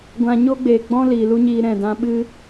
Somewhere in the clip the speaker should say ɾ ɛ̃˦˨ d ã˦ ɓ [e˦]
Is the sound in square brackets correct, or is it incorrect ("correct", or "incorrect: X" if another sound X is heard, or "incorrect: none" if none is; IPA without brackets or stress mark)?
incorrect: ɨ˦